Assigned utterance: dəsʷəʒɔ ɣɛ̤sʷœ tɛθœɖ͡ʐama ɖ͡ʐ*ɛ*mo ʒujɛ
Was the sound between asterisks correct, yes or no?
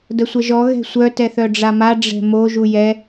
no